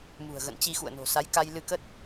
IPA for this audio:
m ṳ˨˩ ə̯ ɣ ə̰˧˨ n t͡ɕ i˧ x ṵ˧˨ ə̯ n o̤˨˩ s a˨˦ j k a˧ j l ɨ˧ k ə˦˥ t̚

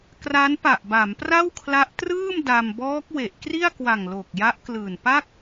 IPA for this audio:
k r a˦˥ n p a˨˩ ʔ b a˩˦ m p r a˥˩ w kʰ l a˦˥ ʔ t r ɯː˥˩ m d a˧ m b ɔː˦˥ k̚ w e˨˩ ʔ k r i˥˩ a̯ k w a˨˩ ŋ l o˨˩ k̚ j a˦˥ ʔ k l ɯː˨˩ n p a˥˩ k̚

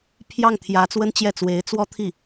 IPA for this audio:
pʰ j ɑ˥˩ ŋ t̪ʰ j ä˧˥ t͡s w ə˥ n t͡ɕ j ɛ˥˩ t͡s w e˧˥ ɪ̯ t͡s w ɔ˥ t̪ʰ i˥˩

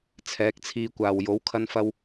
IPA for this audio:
t͡sʰ ɛː˨˥ k̚ t͡sʰ iː˧ kʷ aː˨ w j o˨˥ w kʰ ɐ˧ n f ɐ˧ w

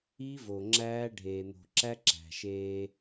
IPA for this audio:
i˦ v o˨ ŋ͡ǁ æː˦ ɖʱ eː˨ n̪ o̤˨ ǁ æ˦ ǁ æ̤˨ ʃ eː˦

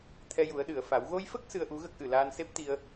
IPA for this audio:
t̪ʰ ɛ˧ j u˨˩˦ ə̯ ɗ ɨ˨˩˨ ə̯ f a˨˩˦ w ɣ o˧ j f ə˦˥ k̚ s ɨ˧ ə̯ ʔ u˧˥ ɣ ə˦˥ k̚ ʔ ɨ˨˩˨ l aː˧ n s e˦˥ p̚ t̪ i˧ ə̯

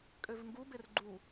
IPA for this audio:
kʼ ø v ŋ ɡ u b e r ɡ͡ǃ u

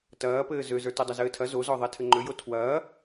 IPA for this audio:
t ɐː p ɘː z ø z ə˞ t e dˤ ɐ z ɘː tʰ ɐ z o z ɔ ðˤ ɛ tʰ ɘ ŋ͡ǃ ø j o tʰ w ɐː

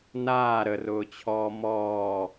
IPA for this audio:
n aː ɾ ə r ʊː t͡ɕʰ ɔː m ɔː

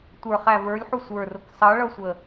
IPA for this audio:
tʷ ə˞ χ æ v ə˞ lʲ ħ u sʷ ə˞ r ʊ k sˤ ʌ ɭ ʌ sʷ ə

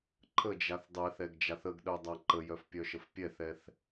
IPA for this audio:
ǃʰ ə d͡ʒ a θ dˤ ɛ θ ɛ ɡ d͡ʒ a θ ə ɡ ɗ œ dˤ a ǃ ə j œ f pʲ œ ʃ ə f pʲ ɛ θ ɛ θ

